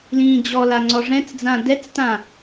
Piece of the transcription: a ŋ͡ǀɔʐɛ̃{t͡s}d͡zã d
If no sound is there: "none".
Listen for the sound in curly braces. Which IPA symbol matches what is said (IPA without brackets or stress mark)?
t͡s